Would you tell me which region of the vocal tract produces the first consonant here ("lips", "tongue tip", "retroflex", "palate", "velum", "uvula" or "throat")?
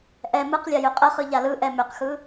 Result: throat